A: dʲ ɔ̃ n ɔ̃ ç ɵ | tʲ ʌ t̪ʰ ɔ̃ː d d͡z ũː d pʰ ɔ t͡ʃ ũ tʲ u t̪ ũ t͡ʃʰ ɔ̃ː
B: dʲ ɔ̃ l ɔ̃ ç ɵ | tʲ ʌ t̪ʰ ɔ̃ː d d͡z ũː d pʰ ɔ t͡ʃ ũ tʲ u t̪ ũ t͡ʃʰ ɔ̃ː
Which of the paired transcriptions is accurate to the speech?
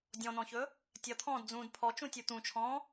A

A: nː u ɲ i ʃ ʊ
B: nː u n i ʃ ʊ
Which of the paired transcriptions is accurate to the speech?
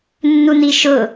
B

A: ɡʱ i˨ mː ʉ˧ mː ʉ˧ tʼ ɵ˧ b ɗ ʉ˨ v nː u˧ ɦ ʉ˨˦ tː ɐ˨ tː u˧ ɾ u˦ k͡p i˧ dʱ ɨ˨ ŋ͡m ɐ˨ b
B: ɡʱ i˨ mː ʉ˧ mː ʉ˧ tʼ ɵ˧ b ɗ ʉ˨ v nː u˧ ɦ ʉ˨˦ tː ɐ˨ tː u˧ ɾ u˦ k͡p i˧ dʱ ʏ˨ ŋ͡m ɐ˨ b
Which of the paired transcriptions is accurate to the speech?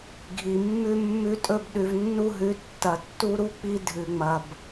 A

